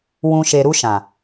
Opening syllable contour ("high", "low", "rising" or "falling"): high